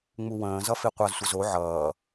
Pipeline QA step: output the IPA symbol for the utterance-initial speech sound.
ŋ͡m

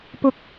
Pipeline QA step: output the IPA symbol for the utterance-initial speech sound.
p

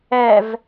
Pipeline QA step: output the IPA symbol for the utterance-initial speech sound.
ɛ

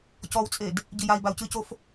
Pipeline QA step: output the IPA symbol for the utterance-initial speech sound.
c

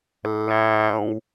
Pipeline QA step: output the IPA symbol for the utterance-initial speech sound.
lː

